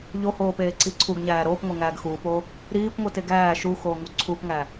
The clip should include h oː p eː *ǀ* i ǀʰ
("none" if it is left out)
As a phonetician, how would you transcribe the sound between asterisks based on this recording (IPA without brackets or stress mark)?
ǀ